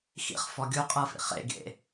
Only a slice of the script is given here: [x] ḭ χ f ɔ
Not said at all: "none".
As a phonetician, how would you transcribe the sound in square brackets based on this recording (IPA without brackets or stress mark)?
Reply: x